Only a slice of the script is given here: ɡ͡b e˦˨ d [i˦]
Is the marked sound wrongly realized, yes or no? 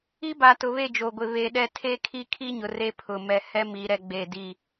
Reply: yes